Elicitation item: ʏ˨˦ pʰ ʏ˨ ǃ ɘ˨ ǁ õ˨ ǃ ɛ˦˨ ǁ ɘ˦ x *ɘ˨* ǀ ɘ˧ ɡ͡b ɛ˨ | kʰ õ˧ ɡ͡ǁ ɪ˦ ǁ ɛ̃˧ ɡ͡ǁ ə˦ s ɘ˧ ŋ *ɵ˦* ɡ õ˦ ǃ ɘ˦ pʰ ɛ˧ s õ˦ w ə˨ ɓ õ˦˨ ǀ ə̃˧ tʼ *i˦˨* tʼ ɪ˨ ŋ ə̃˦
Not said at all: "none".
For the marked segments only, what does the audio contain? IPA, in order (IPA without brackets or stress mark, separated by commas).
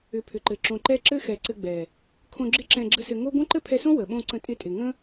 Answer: ɛ˨, o˦, ɪ˦˨